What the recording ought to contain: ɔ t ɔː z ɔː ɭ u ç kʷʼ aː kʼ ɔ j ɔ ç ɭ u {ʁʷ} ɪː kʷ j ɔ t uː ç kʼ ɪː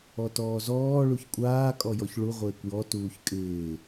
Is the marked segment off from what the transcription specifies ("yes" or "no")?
no